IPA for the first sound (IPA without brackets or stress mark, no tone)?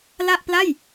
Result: l